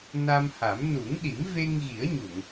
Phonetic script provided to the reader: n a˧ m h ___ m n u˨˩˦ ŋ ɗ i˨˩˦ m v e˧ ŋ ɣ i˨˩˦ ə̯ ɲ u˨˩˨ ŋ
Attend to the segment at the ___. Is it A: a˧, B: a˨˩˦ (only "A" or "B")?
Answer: B